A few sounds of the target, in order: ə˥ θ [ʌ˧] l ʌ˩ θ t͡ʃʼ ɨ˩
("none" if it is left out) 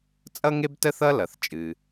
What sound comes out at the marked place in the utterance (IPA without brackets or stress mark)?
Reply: ʌ˧